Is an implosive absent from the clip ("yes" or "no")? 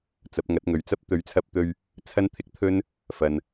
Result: yes